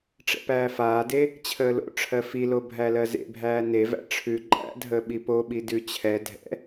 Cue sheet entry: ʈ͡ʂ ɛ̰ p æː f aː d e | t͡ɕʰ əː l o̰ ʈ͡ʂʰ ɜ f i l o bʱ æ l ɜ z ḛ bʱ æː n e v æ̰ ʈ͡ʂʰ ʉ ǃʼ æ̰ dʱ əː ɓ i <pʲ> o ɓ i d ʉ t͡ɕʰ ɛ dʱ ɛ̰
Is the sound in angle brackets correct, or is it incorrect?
incorrect: p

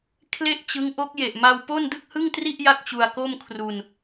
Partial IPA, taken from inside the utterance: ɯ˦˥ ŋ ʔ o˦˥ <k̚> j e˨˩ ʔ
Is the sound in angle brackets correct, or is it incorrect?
correct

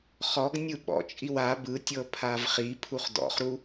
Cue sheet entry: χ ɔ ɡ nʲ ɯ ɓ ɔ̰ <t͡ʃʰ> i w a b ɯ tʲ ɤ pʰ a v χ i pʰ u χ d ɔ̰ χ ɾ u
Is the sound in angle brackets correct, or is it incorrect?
incorrect: t͡ʃʼ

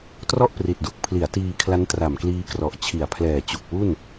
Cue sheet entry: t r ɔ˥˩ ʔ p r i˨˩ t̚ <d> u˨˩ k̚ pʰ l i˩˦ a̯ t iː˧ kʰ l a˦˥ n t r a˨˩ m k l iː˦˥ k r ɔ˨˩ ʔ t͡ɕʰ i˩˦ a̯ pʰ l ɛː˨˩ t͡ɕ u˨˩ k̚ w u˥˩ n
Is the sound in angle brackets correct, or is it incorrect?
correct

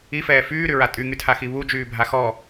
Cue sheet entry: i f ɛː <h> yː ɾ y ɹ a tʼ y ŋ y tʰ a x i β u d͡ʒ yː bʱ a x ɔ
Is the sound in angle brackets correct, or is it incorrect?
incorrect: f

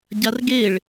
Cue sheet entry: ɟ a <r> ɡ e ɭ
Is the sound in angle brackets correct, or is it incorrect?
correct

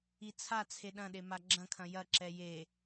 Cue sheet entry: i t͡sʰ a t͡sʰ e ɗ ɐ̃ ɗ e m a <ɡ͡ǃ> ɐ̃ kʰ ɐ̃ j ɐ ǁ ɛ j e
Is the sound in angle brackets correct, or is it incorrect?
incorrect: ɡ͡ǁ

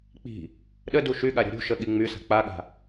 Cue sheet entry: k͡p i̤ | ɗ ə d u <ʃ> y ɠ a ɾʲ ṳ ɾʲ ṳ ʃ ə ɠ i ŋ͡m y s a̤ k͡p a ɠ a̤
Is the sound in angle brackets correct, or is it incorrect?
correct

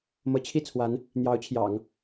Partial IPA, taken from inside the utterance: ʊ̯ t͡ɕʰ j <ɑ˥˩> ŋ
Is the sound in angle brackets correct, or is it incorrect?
incorrect: ɑ̰˨˩˦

